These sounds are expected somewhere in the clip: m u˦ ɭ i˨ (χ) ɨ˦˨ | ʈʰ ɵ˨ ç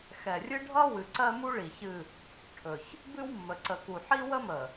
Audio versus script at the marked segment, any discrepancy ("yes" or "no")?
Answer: yes